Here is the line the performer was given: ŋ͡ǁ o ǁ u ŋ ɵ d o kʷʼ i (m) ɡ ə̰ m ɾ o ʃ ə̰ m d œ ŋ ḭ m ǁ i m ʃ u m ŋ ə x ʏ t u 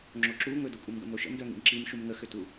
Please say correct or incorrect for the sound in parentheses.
correct